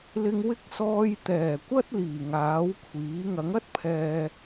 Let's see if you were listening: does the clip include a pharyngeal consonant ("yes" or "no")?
no